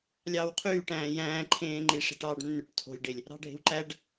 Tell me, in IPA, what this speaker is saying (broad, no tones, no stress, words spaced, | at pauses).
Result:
lʲɑːwqʰyːʈæ̃ː jæ̃ːǃʰẽːŋ͡ǃi ʂe̤ʈɑːɖnːyʈ tʰo̤lʲɖelʲ | ɾɑ̤ɖʱe̤wǃæɖ